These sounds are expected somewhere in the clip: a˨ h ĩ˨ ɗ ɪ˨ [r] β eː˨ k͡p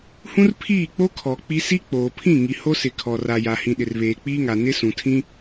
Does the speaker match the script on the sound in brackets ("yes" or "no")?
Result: yes